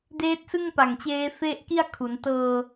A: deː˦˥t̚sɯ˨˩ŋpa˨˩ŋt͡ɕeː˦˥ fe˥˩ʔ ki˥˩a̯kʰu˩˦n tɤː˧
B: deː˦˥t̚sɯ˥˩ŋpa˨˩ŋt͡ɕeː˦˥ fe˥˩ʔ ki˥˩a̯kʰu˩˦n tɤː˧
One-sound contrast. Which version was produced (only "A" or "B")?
B